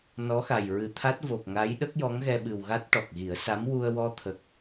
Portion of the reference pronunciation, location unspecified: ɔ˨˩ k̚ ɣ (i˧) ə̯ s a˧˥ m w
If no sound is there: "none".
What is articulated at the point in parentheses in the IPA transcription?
i˨˩˦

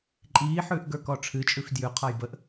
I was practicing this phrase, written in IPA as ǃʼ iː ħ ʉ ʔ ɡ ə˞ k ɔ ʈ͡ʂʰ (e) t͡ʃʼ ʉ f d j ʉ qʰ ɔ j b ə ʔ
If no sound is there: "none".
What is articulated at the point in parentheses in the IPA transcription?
ɨ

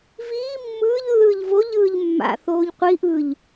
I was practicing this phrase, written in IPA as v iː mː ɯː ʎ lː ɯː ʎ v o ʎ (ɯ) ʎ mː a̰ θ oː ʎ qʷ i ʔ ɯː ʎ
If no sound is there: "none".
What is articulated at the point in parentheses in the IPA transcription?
ɯː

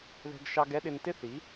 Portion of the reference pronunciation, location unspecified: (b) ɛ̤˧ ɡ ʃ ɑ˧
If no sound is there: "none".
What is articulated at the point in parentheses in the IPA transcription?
ð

